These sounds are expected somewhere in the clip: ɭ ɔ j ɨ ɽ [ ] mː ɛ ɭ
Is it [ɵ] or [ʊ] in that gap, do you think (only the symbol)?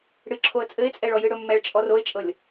ɵ